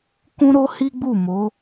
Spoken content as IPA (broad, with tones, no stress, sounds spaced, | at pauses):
k ũ˦ ɾ o˦ h i˦ ɡ͡b u˦˨ m o˨˦